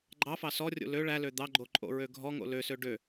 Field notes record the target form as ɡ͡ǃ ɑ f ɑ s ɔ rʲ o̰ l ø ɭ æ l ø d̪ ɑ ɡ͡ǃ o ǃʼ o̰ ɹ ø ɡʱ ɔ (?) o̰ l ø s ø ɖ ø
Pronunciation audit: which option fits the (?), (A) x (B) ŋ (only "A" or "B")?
B